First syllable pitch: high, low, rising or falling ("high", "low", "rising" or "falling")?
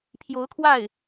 rising